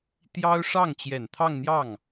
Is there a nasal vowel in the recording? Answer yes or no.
no